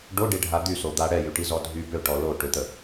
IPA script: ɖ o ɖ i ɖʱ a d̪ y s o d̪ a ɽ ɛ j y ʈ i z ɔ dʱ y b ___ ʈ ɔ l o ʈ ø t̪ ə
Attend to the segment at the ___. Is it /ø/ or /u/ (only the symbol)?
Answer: ø